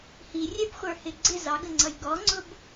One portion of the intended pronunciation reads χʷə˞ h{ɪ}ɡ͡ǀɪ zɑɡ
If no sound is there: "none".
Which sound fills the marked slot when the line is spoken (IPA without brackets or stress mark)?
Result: ɪ